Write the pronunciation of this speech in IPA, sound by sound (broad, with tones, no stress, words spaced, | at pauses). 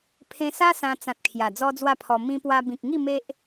pʰẽ˧sa˦ sã˧ t͡sã˨t̚ kʰja˨˩d͡zɔ˦d͡zwa˥˧pʰɔ˧ mĩ˧pwa˧ bĩ˨k̚ŋi˥˧ me˦ʔ